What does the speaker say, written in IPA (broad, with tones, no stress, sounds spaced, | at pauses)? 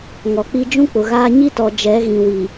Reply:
ŋ ɔ˨ k͡p i˦ d͡ʒ ũ˦ k͡p ʊ˨ ɣ aː˦ ɲ i˦ t ɔ˨ d͡ʒ ɛ˨˦ ɣ ĩ˨ w i˨